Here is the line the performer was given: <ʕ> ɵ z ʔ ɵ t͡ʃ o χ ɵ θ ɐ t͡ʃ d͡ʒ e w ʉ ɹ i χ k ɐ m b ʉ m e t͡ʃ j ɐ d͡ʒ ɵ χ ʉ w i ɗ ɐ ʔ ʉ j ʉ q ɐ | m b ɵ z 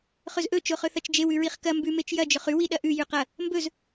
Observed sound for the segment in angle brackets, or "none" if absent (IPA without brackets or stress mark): χ